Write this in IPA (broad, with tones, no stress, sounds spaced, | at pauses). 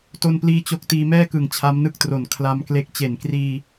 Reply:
t o˥˩ n p l iː˥˩ t͡ɕ o˥˩ k̚ t iː˧ m ɛː˥˩ k ɯ˨˩ ŋ t͡ɕʰ a˦˥ m n ɯ˥˩ k̚ t r o˨˩ n kʰ l a˧ m k l e˦˥ k̚ t͡ɕ e˨˩ n k r iː˧